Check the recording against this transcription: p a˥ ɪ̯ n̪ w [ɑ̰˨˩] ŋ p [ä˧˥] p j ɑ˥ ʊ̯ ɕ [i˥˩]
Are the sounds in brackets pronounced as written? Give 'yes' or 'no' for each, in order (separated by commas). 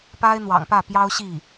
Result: yes, no, yes